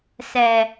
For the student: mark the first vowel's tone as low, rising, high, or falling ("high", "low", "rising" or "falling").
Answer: low